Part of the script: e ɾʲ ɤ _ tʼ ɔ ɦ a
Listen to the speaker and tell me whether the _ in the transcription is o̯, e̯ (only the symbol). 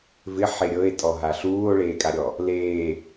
e̯